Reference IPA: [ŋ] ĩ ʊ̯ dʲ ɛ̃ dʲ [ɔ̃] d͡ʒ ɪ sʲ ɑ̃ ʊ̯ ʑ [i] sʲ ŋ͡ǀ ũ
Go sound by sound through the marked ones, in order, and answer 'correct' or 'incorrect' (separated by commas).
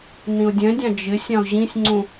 incorrect, incorrect, incorrect